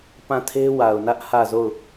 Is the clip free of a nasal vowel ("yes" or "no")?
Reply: no